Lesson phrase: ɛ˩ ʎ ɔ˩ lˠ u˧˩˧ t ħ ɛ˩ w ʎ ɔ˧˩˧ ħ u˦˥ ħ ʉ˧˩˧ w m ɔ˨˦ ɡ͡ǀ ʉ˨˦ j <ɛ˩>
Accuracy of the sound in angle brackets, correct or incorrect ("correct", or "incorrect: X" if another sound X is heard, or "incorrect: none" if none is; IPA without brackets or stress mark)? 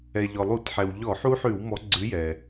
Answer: correct